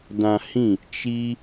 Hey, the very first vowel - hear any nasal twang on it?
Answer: yes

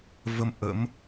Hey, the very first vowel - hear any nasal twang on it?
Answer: no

